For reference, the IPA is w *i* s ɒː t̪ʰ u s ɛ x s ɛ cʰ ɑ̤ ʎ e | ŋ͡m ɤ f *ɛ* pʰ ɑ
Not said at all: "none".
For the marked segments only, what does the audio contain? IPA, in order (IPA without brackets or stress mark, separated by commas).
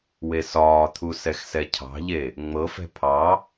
e, ɛ̤